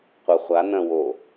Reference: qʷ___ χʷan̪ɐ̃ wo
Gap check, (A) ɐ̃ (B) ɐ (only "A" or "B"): B